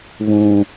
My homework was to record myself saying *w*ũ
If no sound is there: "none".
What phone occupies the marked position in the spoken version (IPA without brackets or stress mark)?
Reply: β